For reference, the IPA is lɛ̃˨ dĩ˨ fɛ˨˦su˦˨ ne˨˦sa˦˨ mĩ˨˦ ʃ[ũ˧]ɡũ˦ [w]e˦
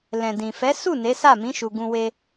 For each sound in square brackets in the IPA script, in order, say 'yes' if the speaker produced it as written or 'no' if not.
no, yes

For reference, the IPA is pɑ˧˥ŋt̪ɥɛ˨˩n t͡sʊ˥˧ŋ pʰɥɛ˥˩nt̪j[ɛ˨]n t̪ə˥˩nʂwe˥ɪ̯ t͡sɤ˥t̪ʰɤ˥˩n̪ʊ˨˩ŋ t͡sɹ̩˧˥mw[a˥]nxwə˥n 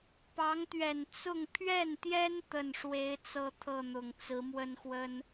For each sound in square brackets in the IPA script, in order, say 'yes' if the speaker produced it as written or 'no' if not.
no, no

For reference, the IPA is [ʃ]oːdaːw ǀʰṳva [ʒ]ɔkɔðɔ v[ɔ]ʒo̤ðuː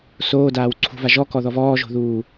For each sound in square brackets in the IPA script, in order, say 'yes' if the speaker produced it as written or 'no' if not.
no, yes, no

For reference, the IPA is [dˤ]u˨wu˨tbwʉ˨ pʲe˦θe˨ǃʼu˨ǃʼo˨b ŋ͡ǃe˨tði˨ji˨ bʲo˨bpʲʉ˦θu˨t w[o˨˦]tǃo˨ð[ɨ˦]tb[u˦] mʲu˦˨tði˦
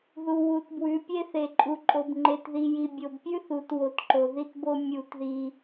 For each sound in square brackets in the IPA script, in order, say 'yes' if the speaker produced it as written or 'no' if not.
no, yes, no, no

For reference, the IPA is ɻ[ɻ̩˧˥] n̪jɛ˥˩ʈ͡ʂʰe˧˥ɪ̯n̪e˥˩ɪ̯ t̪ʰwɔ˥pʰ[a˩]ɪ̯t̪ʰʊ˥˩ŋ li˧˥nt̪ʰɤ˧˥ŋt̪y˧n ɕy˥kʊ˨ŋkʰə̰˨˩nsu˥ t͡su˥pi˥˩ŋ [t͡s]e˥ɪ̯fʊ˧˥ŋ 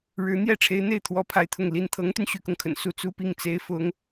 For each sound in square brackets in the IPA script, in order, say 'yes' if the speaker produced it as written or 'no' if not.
yes, no, yes

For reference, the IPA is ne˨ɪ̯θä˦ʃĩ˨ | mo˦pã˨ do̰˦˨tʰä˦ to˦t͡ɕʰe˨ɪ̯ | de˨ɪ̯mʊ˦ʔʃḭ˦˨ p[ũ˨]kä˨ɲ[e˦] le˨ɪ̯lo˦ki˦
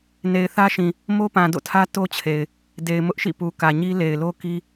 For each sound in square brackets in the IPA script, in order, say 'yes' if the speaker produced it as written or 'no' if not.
no, no

